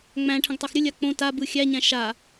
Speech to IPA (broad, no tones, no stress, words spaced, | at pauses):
ŋ͡mæ̃ ʈʰə̃ɡtˤæxɾʲə lʲak͡põ tabɯ xʲæɲæ̃ ʃa